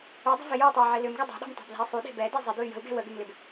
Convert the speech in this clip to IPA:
ʏ dˤ ə̤ v ɪ j u y̯ tˤ ɛ i̯ ʕ ɪ l ʏ m ɡ ʏ dˤ e̤ ɗ ɛ̤ m tˤ ɛ̤ b l ɛ̤ i̯ sˤ u ɗ e̤ b ɛ d e zˤ ɪ d u y̯ j ə̤ u̯ ɡ ɛ̤ w ə ɡ ʏ m l ɪ b

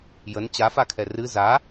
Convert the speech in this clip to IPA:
j ə n t͡ɕ a f a kʰ ɛ r ɨ z a

